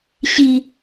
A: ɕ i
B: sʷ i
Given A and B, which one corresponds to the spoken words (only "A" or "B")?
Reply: A